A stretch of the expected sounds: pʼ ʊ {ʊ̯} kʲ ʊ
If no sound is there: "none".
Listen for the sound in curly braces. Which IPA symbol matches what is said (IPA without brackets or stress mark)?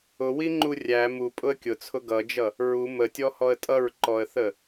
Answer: ə̯